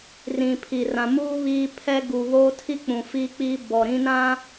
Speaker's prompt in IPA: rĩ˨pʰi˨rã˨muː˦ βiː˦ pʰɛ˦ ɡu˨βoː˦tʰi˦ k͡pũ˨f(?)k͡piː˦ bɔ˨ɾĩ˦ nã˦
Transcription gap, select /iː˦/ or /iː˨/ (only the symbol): iː˦